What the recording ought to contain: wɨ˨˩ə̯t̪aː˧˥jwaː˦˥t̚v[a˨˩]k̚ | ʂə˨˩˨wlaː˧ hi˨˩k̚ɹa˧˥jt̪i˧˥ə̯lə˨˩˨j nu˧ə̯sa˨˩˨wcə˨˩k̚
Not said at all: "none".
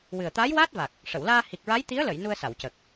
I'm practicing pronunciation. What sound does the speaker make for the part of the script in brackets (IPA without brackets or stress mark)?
a˨˩